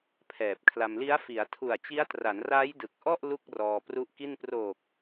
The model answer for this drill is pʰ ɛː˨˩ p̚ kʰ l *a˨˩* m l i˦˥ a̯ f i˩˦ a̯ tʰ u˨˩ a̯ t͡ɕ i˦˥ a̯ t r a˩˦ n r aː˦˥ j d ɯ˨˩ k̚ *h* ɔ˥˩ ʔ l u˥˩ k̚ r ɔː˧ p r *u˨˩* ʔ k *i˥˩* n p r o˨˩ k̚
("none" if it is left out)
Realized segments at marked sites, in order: a˧, ʔ, u˦˥, i˥˩

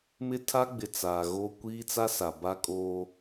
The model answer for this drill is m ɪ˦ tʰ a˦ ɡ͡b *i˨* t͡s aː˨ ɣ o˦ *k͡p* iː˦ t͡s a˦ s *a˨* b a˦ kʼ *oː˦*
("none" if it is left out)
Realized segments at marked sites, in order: ɪ˨, kʷ, a˨, oː˦

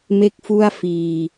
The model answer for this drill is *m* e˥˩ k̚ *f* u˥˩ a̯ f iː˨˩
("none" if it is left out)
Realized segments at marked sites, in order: m, f

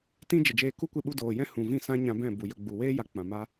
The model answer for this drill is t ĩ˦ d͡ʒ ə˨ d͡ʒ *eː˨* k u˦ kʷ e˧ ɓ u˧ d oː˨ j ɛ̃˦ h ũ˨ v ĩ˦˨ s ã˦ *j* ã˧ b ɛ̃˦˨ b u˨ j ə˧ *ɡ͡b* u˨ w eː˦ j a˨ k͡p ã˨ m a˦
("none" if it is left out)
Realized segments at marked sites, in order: eː˧, ɲ, ɡ͡b

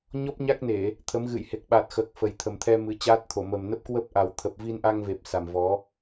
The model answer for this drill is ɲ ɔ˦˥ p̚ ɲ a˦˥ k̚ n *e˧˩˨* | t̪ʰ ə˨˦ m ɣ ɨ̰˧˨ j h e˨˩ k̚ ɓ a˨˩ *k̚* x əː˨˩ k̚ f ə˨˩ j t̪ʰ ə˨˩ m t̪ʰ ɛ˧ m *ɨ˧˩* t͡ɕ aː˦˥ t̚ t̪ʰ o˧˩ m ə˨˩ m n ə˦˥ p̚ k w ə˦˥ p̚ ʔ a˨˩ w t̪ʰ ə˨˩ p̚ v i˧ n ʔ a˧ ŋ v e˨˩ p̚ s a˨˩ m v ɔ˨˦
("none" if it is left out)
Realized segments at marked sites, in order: e˧˩˨, t̚, ɨ˨˦

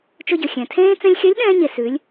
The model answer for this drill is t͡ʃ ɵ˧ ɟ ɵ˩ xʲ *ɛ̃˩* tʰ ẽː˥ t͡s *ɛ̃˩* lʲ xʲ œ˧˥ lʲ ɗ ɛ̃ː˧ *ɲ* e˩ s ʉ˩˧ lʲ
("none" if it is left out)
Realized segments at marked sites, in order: ɛ̃˩, ɛ̃˧, ɲ

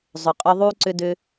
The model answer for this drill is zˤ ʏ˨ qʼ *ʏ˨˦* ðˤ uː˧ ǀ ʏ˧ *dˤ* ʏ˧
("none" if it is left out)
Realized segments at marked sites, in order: ʏ˧, d

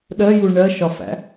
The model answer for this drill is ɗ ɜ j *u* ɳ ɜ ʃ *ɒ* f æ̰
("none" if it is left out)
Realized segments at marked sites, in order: u, ɒ

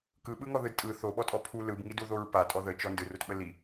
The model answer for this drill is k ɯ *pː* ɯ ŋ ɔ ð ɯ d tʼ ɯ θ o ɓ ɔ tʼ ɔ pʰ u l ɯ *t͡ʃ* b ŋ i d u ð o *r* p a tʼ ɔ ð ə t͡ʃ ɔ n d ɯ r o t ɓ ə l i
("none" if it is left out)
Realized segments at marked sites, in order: ɓ, none, ɹ

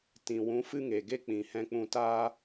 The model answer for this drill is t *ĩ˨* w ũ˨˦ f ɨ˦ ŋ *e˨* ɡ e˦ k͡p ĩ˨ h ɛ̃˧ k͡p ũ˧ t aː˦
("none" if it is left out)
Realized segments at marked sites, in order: ĩ˨, e˨

